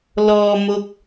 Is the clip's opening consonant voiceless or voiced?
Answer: voiced